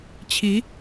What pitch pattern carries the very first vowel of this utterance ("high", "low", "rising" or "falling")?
rising